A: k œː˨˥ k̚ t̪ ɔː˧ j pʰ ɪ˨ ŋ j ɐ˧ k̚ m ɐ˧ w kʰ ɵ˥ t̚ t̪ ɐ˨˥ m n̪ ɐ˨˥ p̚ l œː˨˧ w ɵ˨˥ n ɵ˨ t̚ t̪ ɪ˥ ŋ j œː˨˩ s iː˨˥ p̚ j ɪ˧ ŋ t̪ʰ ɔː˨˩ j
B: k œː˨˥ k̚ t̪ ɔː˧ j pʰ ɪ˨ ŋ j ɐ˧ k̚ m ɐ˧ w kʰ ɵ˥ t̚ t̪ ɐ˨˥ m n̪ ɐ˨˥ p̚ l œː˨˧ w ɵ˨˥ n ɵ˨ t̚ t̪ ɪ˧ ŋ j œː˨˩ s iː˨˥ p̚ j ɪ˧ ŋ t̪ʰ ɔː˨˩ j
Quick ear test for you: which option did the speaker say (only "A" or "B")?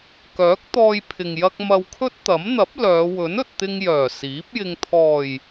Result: B